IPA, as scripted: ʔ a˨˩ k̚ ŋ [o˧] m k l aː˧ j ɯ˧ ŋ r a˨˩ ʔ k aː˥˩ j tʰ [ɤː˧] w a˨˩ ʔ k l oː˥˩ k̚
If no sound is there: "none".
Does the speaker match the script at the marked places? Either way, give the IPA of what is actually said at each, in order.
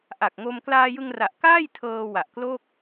o˧, ɤː˧

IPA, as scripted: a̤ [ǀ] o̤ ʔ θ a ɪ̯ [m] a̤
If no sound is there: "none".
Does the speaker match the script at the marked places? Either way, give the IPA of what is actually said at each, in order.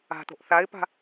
t̪, p

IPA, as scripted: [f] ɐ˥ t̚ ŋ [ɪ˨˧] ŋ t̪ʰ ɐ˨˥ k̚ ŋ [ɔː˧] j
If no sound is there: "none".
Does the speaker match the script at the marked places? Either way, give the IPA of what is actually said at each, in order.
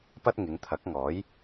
p, ɪ˨˧, ɔː˨˥

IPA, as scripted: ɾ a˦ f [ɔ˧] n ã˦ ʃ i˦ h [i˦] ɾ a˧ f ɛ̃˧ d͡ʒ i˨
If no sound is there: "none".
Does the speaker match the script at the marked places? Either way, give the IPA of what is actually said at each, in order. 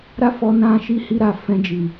ɔ˧, i˦

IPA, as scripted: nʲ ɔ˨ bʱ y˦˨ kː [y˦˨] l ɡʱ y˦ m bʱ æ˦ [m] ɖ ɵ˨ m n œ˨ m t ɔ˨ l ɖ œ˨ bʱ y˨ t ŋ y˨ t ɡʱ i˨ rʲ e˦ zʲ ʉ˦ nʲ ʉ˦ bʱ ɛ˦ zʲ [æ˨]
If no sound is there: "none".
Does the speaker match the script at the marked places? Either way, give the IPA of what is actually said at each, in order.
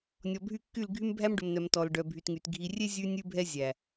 y˦˨, m, æ˨

